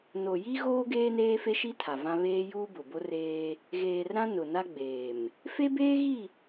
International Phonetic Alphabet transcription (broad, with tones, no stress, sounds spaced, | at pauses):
n o˨ j i˦ ɣ oː˦ ɡ eː˦ n eː˦ f e˦ ʃ i˦ tʰ a˨ v ã˦ β eː˦ j uː˦ b ʊ˨ b o˦ r eː˦ | ɣ eː˨ r ɾ ã˦ n ʊ˨ n a˦ ɡ͡b eː˨ m | f e˦ b eː˦ ɣ i˦˨